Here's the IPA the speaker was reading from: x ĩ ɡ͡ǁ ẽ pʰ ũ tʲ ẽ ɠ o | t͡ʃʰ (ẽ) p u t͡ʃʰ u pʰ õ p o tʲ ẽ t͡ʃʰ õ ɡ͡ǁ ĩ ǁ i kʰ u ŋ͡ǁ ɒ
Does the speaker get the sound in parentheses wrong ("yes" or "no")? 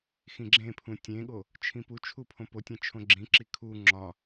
yes